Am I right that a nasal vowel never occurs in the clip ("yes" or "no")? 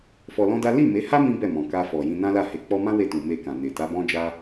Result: no